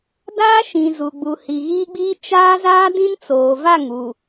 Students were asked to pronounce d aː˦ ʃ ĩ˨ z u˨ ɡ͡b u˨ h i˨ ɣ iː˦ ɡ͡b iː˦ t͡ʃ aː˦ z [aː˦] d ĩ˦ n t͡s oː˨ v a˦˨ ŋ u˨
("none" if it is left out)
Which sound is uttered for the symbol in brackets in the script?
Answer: aː˦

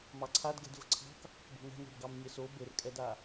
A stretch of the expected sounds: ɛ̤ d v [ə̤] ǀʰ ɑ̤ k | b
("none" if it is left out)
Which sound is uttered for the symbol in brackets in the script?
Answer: ə̤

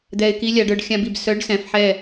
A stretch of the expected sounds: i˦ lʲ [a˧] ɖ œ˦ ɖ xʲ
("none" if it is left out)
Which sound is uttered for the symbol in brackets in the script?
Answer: a˧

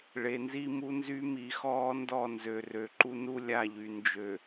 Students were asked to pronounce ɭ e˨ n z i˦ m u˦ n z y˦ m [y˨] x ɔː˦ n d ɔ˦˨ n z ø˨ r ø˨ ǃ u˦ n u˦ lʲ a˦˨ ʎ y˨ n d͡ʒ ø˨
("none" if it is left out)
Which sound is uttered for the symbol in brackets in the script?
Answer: i˨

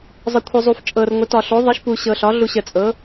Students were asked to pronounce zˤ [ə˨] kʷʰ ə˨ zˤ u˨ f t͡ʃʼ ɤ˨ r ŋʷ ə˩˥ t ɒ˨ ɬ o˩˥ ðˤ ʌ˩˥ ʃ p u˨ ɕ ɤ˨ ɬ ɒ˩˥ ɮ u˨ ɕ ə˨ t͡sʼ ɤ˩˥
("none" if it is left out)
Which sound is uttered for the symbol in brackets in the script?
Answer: ə˨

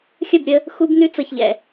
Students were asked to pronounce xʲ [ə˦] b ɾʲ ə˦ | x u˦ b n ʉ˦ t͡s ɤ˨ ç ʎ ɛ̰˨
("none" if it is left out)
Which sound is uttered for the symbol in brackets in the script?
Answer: ə˦˨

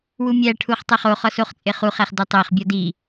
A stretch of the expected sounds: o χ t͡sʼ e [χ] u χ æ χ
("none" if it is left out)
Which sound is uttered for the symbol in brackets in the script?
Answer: χ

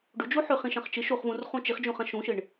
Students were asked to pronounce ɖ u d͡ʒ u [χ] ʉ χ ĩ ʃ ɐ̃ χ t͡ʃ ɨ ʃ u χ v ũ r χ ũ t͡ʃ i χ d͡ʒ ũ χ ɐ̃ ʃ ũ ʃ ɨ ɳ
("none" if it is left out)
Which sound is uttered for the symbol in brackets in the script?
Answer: ħ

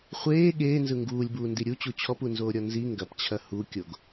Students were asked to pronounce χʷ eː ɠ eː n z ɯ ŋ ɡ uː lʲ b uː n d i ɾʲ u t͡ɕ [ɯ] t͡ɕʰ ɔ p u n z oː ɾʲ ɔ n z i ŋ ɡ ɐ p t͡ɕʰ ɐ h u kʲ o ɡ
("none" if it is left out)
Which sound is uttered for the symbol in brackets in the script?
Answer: u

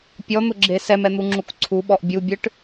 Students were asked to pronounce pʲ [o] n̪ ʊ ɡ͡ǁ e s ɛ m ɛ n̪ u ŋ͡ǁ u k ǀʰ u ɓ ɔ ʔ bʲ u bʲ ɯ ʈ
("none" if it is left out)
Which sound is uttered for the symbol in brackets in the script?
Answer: ɔ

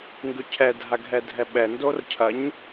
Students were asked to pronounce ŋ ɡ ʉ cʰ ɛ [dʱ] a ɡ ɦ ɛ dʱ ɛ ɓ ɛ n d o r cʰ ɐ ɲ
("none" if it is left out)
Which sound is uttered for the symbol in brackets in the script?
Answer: dʱ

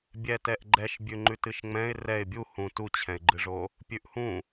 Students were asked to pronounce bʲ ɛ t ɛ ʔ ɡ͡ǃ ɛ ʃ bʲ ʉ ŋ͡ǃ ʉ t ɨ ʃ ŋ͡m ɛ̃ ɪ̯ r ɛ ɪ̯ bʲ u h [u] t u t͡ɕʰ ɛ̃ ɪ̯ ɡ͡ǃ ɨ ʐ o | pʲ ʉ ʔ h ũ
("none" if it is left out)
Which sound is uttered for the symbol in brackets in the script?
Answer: ũ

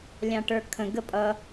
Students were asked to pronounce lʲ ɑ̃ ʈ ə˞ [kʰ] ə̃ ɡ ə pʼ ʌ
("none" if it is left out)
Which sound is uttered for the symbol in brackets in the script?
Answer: kʰ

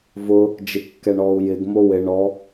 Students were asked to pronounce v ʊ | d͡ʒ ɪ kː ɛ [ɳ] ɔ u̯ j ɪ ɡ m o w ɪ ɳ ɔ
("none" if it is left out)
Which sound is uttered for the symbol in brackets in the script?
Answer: ɳ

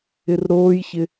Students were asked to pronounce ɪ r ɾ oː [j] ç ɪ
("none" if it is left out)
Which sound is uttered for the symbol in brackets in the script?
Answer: j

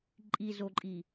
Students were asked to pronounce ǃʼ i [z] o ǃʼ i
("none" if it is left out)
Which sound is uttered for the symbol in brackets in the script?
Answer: z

